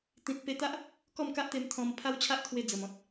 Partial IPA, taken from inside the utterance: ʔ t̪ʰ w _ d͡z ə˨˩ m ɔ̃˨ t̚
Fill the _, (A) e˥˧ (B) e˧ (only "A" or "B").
B